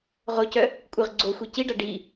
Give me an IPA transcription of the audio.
ʁ o c œ | kʷʼ ɨ ʁ ɡ͡ǀ o xʷ i c i ɖ a ɖ i

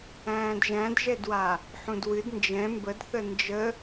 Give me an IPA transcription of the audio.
æ̃ː d ʒ æ̃ d ʒ ɛ d w a | ħ ũ d w ɨ d n d͡ʒ ɛ̃ m b ə d θ ə n d͡ʒ ə

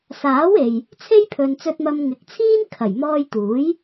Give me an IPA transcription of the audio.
s aː˨˥ w e˨ j | t͡sʰ e˥ j pʰ ɵ˨ n t͡s ɵ˨ t̚ m ɐ˨ m ŋ ɪ˨˥ k̚ t͡sʰ iː˥ n kʰ ɐ˨˩ j m ɔː˧ j t̪ uː˨˥ j

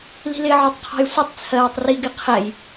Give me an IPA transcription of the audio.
l i̤ l ɪ ʕ ɔ tˤ qʰ ɔ̤ j sʷ ɪ tˤ t͡sʰ ɜː tˤ r i ɡ ɪ qʰ ɛ j

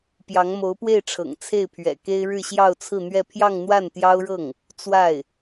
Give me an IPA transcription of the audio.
p j ɑ˧˥ ŋ m o˧˥ ʊ̯ p w e˥˩ ɪ̯ ʈ͡ʂʰ ɤ̰˨˩ ŋ t͡sʰ e˥˩ ɪ̯ pʰ ɥ ɛ̰˨˩ k e˥ ɪ̯ ɻ ɻ̩˥˧ ɕ j ɑ˥˧ ʊ̯ t͡sʰ ɹ̩˥˧ n̪ ɥ ɛ˥˧ pʰ j ɑ˥˧ ŋ n̪ w a˥˩ n t̪ j ɑ˥ ʊ̯ ɻ ɤ˥˩ ŋ | t͡s w a˥˩ ɪ̯

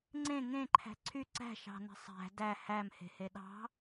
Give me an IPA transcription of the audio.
ŋ͡ǀ ẽ ŋ ẽ ǃʰ æ̤ ǀʰ y ǀ æ̤ ʃ ɑ̤ n æ̤ sˤ æ̤ d æ h æ m h e̤ h e ɗ ɑ̤

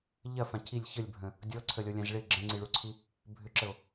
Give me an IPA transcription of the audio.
ʎ ɐ f ã cʰ i lʲ ç ə lʲ bʱ ə̃ | dʲ ɔ ǀʰ ə lʲ ɔ lʲ ã z ɭ ɪ ɡ͡ǁ ə̃ ŋ͡ǀ i ɭ u ǀʰ i | bʱ ʏ ǁ ə o̯

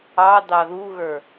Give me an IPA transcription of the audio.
ɑ d̪ ɑ ð u ɣ ə˞

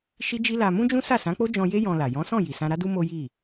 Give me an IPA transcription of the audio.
ʃ i˦ d͡ʒ i˦ l a˧ m ũ˦ d͡ʒ ũ˦ s a˦˨ s ã˨˦ k͡p o˦ d͡ʒ ɔ̃˧ j e˦ j ɔ̃˧ l a˨ j ɔ̃˨˦ s ɔ̃˦˨ j i˨ s ã˧ ɾ a˦ d u˦ m o˦ j i˦˨

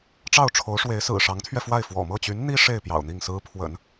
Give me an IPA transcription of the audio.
ʈ͡ʂ ɑ˥˩ ʊ̯ ʈ͡ʂʰ o˧˥ ʊ̯ ʂ w e˧˥ ɪ̯ s ɹ̩˨˩ ʂ ɑ˧˥ ŋ t̪ʰ ɥ ɛ˧ f w a˥˩ ɪ̯ f w ɔ̰˨˩ m ɤ˥˩ t͡ɕ y˧˥ n n̪ i˥ ʂ e˥˩ ɪ̯ p j ɑ̰˨˩ ʊ̯ n̪ i˥˩ ŋ s ɹ̩˥ pʰ w ə̰˨˩˦ n

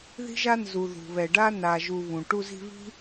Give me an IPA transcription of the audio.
ð i̤˦ ʒ a˦ n z u˨ ð ṳ˨ β ɛ˨ ɖ a˦ n a˧ ʒ u˧ β ũ˨ ʈ u˧ z i̤˧ β i̤˦

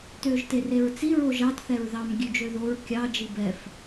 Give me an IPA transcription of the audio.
t øː ʒ t e r e ɹ t͡s i ɹ o ʒ ɑ t θ ɛ ɹ ð ɑ m ɡʲ ʉ d͡ʒ ø ð o ɹ kʲ ɑ d͡ʒ i b ɛ f

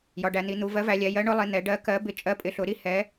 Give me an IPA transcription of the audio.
j ɒ˩˧ ɖ æ˩˧ n̪ i˩˧ n̪ u˩˧ v ɜ˨˥ v æ˩˧ lʲ ɛ˩˧ j ɜ˨˥ ɳ ʊ˨˥ lˠ i˩˧ n̪ ɛ˩˧ ɖ ɜ˨˥ k ɜ˨˥ b ɪ˨˥ t͡ʃʼ ɜ˨˥ pʼ ɪ˩˧ ɬ ʊ˩˧ ɾ i˨˥ h ɛ˨˥

